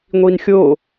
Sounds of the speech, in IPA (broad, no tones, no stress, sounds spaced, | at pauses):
ŋʷ i n xʲ o